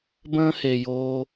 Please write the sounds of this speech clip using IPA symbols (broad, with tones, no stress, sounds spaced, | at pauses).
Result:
b ə̃ː˦ h e˨ j oː˧